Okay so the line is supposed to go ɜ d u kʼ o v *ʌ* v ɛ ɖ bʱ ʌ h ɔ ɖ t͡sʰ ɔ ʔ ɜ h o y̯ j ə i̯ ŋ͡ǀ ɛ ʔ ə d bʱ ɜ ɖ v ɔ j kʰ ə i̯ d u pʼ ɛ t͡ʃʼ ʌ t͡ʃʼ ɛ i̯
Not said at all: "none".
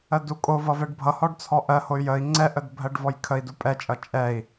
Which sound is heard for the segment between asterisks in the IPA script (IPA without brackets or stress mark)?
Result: ʌ